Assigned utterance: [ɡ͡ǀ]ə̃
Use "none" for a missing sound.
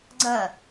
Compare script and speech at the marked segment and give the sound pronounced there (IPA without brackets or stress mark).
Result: ɡ͡ǀ